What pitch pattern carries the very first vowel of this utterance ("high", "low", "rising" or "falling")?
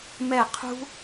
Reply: falling